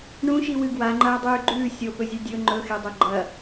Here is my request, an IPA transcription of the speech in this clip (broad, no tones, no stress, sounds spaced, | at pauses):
ɳ ũ ʃ i w ɨ ɡ w a ŋ͡ǃ ɐː dˤ ʉː ɡ͡ǃ ʉː sʲ o p ɵ zʲ ɵ dʲ ɵ ŋ͡ǃ ɵ x e dˤ o ɡ͡ǃ ɐ